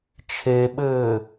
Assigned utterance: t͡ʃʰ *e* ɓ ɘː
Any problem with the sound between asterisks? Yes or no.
no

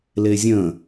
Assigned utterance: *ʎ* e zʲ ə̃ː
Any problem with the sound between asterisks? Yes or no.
yes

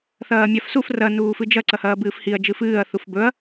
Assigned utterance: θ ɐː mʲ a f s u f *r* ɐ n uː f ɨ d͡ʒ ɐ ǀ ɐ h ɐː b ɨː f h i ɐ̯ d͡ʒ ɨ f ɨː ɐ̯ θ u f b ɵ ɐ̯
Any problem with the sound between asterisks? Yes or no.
no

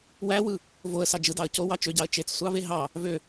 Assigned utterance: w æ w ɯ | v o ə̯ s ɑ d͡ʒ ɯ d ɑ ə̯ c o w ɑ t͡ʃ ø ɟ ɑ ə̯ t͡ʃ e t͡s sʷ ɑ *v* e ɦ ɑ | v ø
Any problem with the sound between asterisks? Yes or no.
no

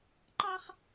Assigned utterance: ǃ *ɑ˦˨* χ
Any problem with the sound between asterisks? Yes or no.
yes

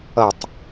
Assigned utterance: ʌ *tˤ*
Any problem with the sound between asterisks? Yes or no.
no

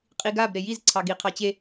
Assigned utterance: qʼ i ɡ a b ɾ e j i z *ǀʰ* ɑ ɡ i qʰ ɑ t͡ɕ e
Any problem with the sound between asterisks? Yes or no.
no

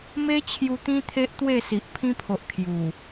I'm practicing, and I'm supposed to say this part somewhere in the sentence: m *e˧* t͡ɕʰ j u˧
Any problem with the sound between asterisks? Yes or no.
yes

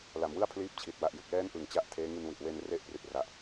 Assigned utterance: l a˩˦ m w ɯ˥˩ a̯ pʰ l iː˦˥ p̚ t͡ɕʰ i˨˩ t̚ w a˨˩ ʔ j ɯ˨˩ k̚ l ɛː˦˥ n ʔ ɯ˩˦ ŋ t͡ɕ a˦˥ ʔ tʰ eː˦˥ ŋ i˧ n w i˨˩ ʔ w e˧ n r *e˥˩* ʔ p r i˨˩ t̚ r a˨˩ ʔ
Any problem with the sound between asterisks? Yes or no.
yes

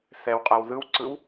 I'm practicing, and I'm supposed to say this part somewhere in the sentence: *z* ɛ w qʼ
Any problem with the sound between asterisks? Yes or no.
yes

